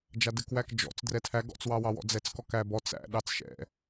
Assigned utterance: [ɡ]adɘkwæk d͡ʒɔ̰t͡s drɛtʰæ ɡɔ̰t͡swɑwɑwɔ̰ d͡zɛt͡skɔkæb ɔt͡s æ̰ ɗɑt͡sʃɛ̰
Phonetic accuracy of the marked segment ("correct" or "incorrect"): incorrect